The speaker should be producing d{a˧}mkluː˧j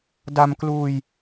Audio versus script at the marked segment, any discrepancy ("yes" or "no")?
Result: no